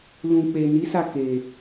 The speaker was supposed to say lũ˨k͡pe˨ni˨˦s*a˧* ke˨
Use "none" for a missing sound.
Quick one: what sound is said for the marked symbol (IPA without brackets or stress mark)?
a˦˨